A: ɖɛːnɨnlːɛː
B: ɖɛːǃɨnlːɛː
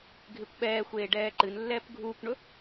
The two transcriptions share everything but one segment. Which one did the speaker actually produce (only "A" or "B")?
B